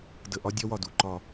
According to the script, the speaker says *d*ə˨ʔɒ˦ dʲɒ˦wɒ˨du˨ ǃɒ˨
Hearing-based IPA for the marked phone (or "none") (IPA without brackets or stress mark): d